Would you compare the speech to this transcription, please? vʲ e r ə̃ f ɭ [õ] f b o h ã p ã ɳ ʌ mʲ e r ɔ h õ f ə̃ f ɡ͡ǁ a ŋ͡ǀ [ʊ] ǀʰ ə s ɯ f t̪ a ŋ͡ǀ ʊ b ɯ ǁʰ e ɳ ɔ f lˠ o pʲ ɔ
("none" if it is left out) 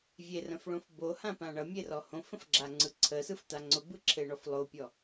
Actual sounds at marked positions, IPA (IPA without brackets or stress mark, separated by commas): õ, ɯ